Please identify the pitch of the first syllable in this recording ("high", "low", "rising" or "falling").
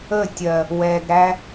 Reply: falling